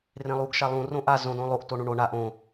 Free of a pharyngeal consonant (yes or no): yes